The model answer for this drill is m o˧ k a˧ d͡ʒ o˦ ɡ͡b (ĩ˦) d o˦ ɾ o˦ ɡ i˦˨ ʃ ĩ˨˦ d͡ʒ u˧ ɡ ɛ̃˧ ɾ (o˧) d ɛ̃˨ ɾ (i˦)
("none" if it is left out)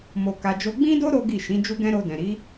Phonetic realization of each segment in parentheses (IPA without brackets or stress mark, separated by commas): ĩ˦, o˧, i˨˦